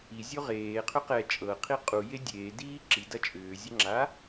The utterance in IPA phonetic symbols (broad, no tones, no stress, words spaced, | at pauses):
izʲo ʁeːqʰʏ qɛ t͡ʃʼɤqʰi qʼuje dʲeːdiː ǁidɐ t͡ʃʼʏːzʲɐŋ͡ǁa